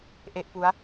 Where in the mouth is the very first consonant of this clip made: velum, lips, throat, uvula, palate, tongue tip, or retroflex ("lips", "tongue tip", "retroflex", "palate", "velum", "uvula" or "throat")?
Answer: throat